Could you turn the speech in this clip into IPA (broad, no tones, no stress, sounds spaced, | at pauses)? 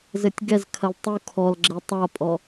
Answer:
z ɘ tʲ ɡ ɛ z kʰ ɐ l tˤ u kʰ ɔ l ɡ͡ǁ ɛ tˤ a pʼ ɔ